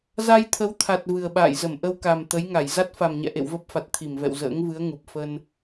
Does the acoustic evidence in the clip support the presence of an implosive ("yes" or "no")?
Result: yes